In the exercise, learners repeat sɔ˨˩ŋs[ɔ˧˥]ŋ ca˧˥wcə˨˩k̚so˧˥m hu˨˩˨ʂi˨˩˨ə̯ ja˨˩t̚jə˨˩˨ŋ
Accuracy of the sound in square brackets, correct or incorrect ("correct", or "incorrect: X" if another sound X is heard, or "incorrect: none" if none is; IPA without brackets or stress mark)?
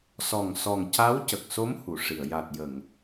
incorrect: ɔ˨˩